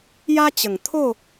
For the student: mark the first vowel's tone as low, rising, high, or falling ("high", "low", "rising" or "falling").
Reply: high